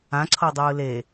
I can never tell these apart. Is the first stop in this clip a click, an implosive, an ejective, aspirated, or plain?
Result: click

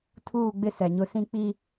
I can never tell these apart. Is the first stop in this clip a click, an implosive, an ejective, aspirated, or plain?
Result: aspirated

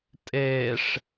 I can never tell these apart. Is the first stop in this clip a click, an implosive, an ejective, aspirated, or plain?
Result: ejective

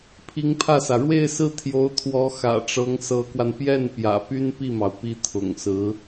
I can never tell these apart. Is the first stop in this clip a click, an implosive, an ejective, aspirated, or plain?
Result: aspirated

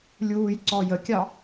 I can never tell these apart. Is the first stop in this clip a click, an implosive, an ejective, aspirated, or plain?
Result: click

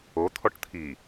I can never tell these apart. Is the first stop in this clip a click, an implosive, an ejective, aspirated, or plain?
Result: aspirated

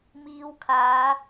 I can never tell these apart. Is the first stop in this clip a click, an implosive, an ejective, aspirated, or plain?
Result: aspirated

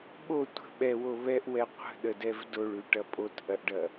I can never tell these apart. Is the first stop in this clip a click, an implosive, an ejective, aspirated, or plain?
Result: implosive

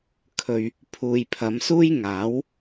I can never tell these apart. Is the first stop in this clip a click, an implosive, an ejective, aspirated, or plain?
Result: aspirated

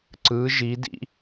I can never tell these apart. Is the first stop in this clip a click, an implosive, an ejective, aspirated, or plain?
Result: click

